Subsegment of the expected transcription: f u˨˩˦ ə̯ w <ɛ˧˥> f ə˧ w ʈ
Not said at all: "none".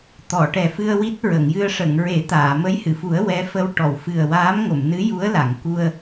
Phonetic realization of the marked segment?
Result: ɛ˧˥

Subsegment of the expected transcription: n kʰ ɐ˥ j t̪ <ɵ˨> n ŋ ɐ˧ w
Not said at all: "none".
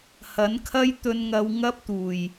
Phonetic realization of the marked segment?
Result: ɵ˧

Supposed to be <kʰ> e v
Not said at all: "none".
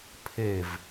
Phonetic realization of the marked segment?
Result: pʰ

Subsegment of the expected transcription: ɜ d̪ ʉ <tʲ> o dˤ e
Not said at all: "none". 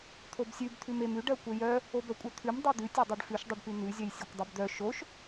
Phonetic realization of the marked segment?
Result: tʲ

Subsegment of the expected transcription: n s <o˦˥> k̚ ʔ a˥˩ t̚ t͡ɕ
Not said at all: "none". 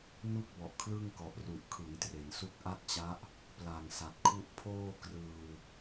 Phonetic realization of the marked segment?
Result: u˦˥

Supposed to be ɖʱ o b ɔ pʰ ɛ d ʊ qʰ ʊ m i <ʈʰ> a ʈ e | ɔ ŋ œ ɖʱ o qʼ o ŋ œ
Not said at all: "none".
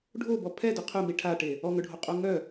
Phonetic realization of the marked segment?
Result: ʈʰ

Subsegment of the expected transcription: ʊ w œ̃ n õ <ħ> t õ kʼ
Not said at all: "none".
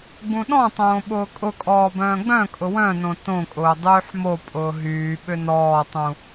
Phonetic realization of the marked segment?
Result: none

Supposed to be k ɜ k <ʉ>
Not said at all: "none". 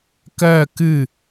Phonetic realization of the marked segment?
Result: ɨ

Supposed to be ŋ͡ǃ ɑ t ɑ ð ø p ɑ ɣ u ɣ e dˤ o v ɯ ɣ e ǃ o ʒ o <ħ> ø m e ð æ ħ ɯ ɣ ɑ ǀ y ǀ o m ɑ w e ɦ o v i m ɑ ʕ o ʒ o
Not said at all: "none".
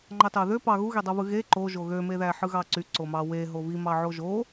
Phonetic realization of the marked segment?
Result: ɣ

